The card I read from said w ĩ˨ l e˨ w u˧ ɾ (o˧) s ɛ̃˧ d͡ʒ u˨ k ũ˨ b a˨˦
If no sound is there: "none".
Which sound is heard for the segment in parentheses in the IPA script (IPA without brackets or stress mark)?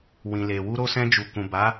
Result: o˧